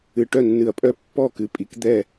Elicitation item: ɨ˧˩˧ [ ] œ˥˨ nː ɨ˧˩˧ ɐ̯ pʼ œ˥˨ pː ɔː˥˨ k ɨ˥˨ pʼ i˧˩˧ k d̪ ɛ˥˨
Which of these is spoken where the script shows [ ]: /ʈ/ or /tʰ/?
ʈ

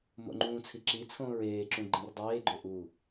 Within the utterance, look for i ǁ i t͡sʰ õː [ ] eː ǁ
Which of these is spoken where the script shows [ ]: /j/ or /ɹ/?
ɹ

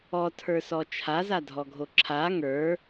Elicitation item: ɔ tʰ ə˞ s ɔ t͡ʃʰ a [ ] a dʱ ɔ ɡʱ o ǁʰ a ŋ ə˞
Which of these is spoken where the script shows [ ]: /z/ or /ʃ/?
z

